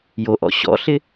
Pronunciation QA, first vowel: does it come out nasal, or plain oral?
oral